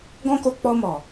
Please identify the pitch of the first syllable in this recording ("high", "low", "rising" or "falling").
high